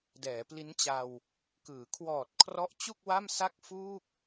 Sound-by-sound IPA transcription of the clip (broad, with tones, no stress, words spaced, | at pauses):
dɛː˩˦pli˦˥nt͡ɕa˧w | kɯː˩˦ kʰwɔː˨˩t̚kʰrɔ˦˥ʔ t͡ɕu˥˩k̚ wa˥˩msa˥˩k̚fuː˥˩k̚